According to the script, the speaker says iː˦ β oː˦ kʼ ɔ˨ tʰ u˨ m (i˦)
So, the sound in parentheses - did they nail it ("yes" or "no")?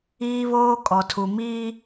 no